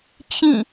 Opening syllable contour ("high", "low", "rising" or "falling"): falling